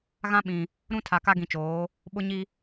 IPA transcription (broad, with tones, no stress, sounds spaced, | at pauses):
ɣ ã˦ ɓ ĩ˨ | ɾ ũ˦ tʰ a˨ k a˦ ɡ ĩ˨ t͡ʃ oː˨˦ | ɓ ʊ˦ ɲ i˦